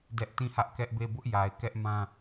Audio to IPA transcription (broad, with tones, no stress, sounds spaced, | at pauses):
d ɛ˦ ʔ t ĩ˦˨ h ä˦ ʔ k ɛ˦ ʔ b e˦˨ b ʊ˦ ʔ j a˨ ɪ̯ k ɛ˦ ʔ m ã˦